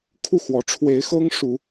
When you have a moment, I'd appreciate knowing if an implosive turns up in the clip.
no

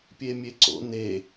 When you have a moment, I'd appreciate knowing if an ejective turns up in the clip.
no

